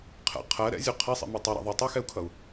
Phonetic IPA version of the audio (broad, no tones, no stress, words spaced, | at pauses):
qʰɛ̰ qʰɜ ɾɛ̰zʲu qʰɛsˤḭmi tˤɛɾa̰ ðˤitˤuxɛu̯kʰʌu̯